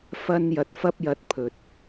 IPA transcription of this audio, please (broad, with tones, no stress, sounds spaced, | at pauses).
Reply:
f ɐ˥ n j ɐ˧ t̚ f ɐ˥ p̚ j ɐ˧ t̚ pʰ ɵ˨ t̚